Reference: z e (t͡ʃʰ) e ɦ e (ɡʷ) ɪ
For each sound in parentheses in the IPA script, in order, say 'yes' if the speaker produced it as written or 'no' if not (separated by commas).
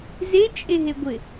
no, yes